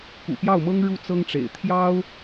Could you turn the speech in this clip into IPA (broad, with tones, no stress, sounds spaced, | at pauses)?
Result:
k ṵ˨˩ p j ɑ˥˩ ʊ̯ m ɤ˥ ŋ ɻ u˥˩ t͡s ɤ˥ ŋ ʈ͡ʂ ḛ˨˩ ɪ̯ t̪ʰ j ɑ˥ ʊ̯